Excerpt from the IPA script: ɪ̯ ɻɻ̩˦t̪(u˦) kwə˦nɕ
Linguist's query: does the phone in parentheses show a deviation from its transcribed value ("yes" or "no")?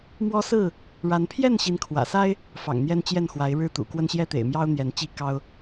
yes